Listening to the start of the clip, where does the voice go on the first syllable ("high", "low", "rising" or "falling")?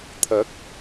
rising